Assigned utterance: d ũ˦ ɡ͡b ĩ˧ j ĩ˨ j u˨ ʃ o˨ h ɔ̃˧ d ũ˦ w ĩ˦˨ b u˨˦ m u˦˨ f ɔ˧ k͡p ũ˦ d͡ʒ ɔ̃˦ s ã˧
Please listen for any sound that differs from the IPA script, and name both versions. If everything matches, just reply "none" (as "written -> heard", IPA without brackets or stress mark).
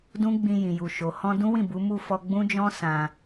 k͡p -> ɡ͡b